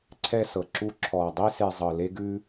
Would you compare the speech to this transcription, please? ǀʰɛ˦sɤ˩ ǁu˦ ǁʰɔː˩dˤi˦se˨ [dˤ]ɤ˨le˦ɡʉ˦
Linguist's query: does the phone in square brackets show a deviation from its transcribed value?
yes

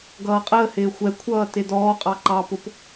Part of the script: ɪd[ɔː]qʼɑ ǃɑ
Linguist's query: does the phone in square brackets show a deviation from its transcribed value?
no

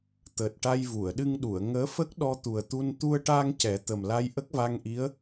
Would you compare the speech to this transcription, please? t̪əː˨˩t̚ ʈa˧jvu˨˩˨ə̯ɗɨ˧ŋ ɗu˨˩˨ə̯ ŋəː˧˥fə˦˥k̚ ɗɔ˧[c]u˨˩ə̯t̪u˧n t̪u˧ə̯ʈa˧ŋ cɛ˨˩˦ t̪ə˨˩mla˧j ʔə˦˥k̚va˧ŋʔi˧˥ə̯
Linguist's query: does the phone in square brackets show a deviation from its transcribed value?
yes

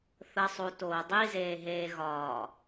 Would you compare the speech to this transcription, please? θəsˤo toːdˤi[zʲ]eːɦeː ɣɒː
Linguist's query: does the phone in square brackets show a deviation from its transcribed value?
yes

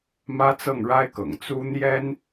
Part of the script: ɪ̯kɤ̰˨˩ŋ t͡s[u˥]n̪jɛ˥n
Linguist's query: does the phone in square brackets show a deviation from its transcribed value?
no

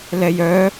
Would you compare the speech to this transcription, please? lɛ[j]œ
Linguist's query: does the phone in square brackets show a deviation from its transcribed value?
no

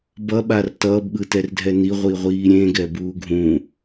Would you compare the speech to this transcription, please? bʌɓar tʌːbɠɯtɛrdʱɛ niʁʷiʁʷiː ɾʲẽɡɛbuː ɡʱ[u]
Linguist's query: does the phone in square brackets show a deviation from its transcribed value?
yes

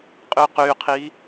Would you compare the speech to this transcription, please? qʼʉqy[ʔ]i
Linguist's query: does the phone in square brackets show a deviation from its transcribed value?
yes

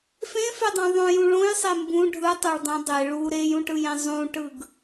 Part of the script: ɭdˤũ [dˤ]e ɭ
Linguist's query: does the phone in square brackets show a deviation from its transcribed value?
no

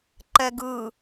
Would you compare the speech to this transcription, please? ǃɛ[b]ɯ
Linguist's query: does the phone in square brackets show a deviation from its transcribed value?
yes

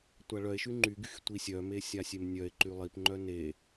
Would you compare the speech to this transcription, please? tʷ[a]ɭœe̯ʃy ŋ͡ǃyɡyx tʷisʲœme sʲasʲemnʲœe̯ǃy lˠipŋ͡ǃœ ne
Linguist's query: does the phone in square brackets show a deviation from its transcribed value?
no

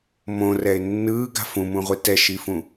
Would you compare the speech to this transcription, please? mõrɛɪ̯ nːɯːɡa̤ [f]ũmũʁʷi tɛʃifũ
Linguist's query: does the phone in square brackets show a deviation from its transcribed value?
no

